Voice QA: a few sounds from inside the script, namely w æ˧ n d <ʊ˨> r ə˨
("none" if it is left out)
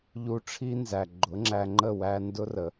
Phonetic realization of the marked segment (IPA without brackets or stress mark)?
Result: ʊ˦